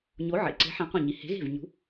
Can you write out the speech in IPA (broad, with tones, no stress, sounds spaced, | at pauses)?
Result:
ɲ o˨˥ ʕ ḛ˩˧ ǀ e̤˨˥ ħ æ̃˨˥ qʷ ĩ˧˩ ɲ i˩˧ h e̤˨˥ ɣ e̤˥˩ v ɲ ṳ˨˥